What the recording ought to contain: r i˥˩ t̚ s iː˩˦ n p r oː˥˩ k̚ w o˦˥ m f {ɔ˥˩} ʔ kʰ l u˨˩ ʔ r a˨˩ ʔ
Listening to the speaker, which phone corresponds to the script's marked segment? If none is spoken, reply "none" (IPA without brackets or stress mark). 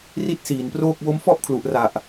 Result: ɔ˥˩